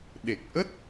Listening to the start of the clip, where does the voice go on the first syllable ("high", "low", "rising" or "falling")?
low